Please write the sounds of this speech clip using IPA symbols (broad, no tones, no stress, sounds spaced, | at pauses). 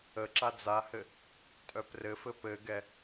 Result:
ə ǁ a d͡z a h ɘ | tʼ œ p r ɘ f ɘ p ɘ ɡ ɛ